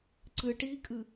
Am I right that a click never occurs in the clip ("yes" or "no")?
no